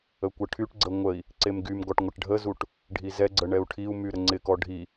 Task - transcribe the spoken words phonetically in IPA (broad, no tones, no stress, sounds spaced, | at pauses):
ə kʷ ə ʈʰ y ʈ ɡ͡ǀ ə ŋʷ ə i̯ | ǀ e m ɡ y m ɡ ɔ ʈ ŋʷ ɪ ʈ ɖʱ ə z u ʈ | ɖʱ i z ɛ ɡ͡ǀ ə ɳ ɛ u̯ ʈʰ i u̯ m y ɾ ə ŋ͡ǀ ɪ k ɔ ɖʱ i